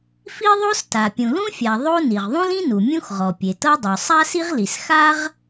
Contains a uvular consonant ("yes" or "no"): yes